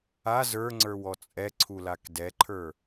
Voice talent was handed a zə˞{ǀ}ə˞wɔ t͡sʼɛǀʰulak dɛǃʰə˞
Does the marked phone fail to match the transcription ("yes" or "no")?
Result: yes